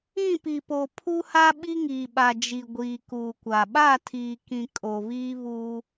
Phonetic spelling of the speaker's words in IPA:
ĩ˦˨ p i˨ p o˨ pʰ u˦ h a˦ ɓ i˦ ŋ iː˨ ɓ a˨ d͡ʒ i˨ ɡʷ iː˨ k uː˨ kʷ a˨ ɓ a˦˨ tʰ iː˨ k ĩ˨ kʼ o˨ β iː˦ β uː˦

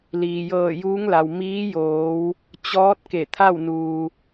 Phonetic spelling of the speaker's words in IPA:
l iː˩ j ɤː˧˩ j uː˧˥ ŋ l a˩ w m iː˧˥ j oː˩˧ w | t͡ɕ ɔː˧˥ t̚ k e˧˩ t̪ʰ a˥˨ w n uː˩

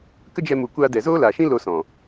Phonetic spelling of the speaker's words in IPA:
k ə˦ d͡ʒ ɛ˧ m u˨ kʷ aː˧ d ɛ˨ z oː˦ l a˨ ʃ ĩ˦ l o˧ s ɔ̃˨

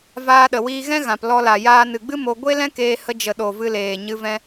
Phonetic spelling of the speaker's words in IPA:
v aː˧ ɗ ə˨ w iː˧ ɣ ɛ̃˦ ɣ ã˨ p l ɔ˧ l a˨ j aː˧ n ɨ˨ ɡ͡b ɨ˦ m o˧ ɡʷ e˦ l ɛ̃˦ k eː˧ h ə˧ d͡ʒ ə˨ ɗ o˨ v ɨ˧ l eː˨ ɲ ɨ˧ v ɛ̃˧

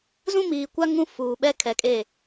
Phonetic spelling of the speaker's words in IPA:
z ũ˦ m iː˨ kʷ a˦ ŋ ũ˦ f uː˨ ɓ ɛ˦ kʰ ɛ˨ kʼ e˦˨

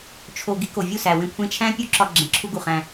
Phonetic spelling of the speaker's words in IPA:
t͡ʃʰ o˧ ɡ i˧ k o˨ vʲ u˦˨ s æ˨ w ẽ˧ kʷʰ ẽ˧ t͡ʃʰ æ̃˦ pʲ u˦ ǁ ɒ˧ ɡ͡ǁ ẽ˨ ǁʰ u˧ ɡ u˨ χ æ̃˧

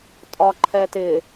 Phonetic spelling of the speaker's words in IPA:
tʼ ɒ ǃʰ ɛ t ɪ

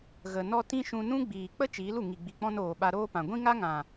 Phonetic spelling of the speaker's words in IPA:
ɣ ə˨ n ɔ˧ t ĩ˦ ʃ ũ˧ n ũ˦ ɡ͡b iː˨ k͡p ə˦ t͡ʃ iː˨˦ l u˨ ŋ i˨ ɡ͡b i˨ k͡p ɔ̃˧ n oː˨ ɓ a˧ ɾ oː˦ p ã˨ ɡʷ ĩ˦ ŋ a˦ ŋ ã˨

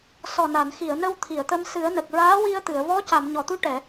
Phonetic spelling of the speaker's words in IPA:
s ɔ˨˩ n a˨˩˨ n x i˨˩˨ ə̯ n ə˧ w t̪ʰ i˨˩˨ ə̯ t̪ ə˧ m s ɨ˨˩˦ ə̯ n ə˨˩ k̚ ɹ aː˧˥ w i˧ ə̯ t̪ ɨ˨˩˨ ə̯ v ɔ˧˥ c a˨˩˨ m ɲ ɔ˨˩˨ t̪ u˧ ʈ ɛ˨˩˨

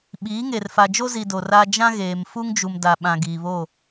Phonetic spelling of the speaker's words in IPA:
ɓ iː˨˦ ŋ e˨ r f a˨ d͡ʒ o˦ z i˨ d o˨ r a˦ d͡ʒ ã˦ ɣ eː˨ m f u˦ ŋ d͡ʒ u˨ m d a˨ ɓ ã˨ ɡ iː˨ β o˦˨

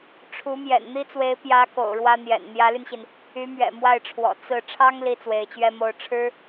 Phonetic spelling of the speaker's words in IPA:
ʈ͡ʂʰ u˧˥ m j ɛ̰˨˩ n n̪ i˥ t͡s w e˧˥ ɪ̯ p j ä˧˥ k o̰˨˩ ʊ̯ ɻ w ä˥ n̪ j ɛ̰˨˩ n n̪ j ä˧˥ l y˧ n ɕ i˩ n | y˧˥ m ɥ ɛ̰˨˩ m w a˥˩ ɪ̯ ʈ͡ʂʰ w ɔ̰˨˩ t͡s ɹ̩˥˩ ʈ͡ʂʰ ɑ˥ ŋ l i˥ t͡s w e˧˥ ɪ̯ t͡ɕ ɥ ɛ˥ m o˧˥ ʊ̯ ʈ͡ʂʰ ɻ̩˥

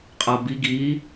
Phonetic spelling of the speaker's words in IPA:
qʼ a b i ɡ i

